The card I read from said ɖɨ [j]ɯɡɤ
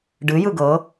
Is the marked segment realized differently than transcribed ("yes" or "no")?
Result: no